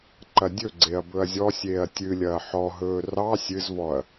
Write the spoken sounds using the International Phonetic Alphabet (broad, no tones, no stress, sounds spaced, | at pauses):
ǃ ɐ dʲ ɵ ɡ͡ǀ e ɐ̯ b ɵ ɐ̯ zʲ ɔ sʲ eː ɐ̯ tʲ ɨ lʲ ɐː ħ ɔ ɦ ɵː r ɑ sʲ ɨ z v ɔ ɐ̯